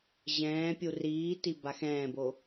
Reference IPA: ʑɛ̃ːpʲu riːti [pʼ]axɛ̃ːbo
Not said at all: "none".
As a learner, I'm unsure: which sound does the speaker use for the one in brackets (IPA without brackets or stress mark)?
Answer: b